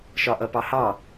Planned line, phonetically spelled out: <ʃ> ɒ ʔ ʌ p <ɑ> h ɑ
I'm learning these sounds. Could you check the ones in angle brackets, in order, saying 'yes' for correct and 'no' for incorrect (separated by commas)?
yes, yes